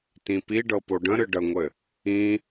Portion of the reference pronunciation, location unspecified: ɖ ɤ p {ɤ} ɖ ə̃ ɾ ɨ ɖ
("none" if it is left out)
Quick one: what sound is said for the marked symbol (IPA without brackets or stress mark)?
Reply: o